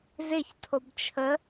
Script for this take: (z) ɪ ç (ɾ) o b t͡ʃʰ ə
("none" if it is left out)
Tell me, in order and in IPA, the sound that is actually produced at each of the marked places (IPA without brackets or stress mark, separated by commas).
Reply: z, tʰ